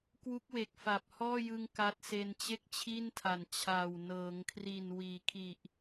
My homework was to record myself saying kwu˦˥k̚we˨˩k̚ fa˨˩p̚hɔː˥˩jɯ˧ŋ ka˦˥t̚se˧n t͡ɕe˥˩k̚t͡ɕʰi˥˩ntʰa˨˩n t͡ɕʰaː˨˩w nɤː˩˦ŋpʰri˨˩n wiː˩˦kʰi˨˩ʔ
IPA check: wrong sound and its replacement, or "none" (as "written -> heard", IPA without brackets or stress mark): pʰ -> kʰ